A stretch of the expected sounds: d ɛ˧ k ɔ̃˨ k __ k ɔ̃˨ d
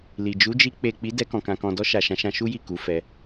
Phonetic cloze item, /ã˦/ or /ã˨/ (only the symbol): ã˨